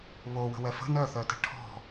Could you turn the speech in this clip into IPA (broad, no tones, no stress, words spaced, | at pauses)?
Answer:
βowə̤wɛ fə̤ nœθœtə̤ ʈʰɔ̤